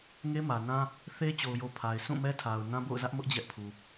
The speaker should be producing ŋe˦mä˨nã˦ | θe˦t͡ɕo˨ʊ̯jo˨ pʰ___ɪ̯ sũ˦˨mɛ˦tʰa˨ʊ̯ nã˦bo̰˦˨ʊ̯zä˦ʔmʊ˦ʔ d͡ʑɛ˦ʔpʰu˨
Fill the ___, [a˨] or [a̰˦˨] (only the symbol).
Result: a˨